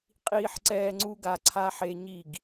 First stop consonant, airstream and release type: ejective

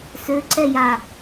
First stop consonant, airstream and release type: click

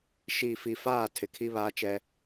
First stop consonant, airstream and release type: aspirated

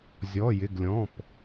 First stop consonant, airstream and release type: plain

